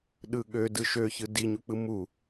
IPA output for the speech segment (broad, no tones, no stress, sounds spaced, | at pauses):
ɗ ɯ ɠ ø d ɯ ʃ ø ç ɯ d i ɲ u k͡p ɯ m u